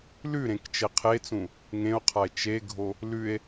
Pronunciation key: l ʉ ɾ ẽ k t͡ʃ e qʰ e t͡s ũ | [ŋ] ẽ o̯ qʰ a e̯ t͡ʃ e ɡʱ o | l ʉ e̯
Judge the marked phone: correct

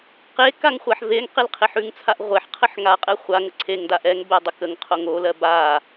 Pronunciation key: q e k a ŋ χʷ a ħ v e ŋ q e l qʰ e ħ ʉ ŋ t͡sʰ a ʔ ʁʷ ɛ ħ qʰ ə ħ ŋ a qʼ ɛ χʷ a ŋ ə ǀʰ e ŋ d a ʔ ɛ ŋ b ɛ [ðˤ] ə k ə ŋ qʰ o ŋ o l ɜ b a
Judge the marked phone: incorrect: dˤ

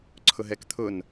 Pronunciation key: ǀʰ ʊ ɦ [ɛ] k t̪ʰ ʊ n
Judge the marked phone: correct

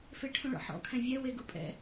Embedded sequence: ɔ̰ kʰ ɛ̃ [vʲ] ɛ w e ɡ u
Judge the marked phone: correct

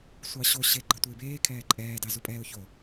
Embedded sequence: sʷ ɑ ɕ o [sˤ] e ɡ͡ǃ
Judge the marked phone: incorrect: ɕ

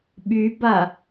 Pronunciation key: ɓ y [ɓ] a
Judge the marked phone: incorrect: b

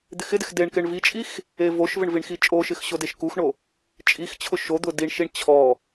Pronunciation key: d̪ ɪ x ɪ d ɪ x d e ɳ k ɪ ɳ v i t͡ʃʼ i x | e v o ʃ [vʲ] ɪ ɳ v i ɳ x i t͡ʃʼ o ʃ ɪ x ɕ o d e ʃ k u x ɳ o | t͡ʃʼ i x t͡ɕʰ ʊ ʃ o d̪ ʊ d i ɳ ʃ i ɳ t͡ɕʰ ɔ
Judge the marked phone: incorrect: v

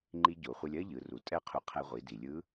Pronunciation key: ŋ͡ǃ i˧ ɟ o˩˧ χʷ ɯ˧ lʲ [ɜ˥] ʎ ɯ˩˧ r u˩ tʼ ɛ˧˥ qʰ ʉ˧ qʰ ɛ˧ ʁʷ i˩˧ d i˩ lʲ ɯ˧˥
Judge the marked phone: correct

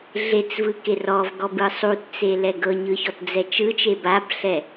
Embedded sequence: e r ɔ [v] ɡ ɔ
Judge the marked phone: correct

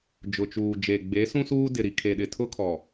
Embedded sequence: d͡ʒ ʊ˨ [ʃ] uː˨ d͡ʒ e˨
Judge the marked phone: incorrect: t͡ʃ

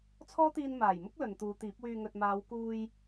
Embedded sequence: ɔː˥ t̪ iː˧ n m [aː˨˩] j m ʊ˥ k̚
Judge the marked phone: correct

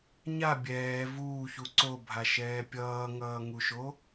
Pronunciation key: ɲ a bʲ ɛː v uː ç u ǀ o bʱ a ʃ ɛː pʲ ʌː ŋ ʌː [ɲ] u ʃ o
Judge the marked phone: incorrect: ŋ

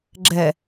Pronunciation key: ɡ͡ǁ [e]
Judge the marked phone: incorrect: ɛ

